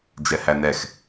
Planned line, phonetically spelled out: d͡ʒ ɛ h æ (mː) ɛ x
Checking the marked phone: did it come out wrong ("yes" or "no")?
yes